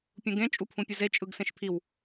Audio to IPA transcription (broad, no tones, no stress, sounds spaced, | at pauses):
pʲ ũ ɡ ẽ t͡ʃʼ u pʰ ũ pʲ ɯ z e t͡ʃʼ ɯ ɡ s ẽ ʃ pʰ i w